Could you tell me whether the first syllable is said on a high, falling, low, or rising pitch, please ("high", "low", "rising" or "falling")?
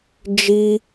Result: high